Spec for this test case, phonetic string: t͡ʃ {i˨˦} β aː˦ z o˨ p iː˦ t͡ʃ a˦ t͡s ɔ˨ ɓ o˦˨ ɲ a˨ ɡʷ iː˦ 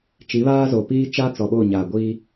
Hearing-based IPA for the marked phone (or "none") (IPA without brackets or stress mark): i˨˦